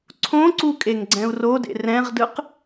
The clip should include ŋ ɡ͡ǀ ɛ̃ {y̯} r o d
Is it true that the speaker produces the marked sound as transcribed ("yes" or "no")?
no